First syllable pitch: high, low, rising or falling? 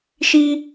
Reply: high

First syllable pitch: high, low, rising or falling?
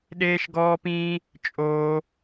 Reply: high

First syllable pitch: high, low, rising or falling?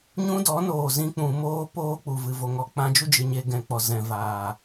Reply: high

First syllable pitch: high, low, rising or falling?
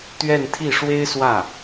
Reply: falling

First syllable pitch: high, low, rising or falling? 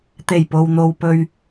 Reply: low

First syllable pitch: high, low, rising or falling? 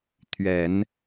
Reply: low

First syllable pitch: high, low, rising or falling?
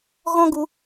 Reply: high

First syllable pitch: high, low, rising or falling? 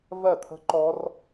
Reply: falling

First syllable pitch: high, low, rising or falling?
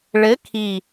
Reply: rising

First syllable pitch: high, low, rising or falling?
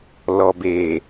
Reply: low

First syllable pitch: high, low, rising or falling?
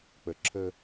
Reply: low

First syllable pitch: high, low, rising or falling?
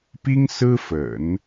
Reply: high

